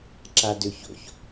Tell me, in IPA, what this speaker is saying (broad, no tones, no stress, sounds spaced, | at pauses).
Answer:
ǁ a d ø ç o̰ ç